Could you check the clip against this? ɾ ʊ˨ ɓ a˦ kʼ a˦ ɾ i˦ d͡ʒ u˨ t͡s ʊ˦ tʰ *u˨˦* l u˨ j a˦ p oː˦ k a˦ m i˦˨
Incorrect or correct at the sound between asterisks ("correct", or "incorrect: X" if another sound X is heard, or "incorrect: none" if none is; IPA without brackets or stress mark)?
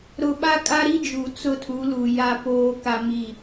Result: correct